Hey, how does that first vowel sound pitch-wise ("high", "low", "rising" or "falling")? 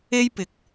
high